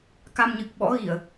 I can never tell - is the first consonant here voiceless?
yes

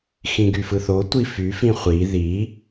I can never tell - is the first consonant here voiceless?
yes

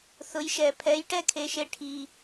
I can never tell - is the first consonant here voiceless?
yes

